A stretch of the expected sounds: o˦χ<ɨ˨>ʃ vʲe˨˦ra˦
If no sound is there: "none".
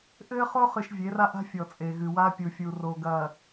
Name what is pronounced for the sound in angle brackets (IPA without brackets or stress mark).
ɨ˨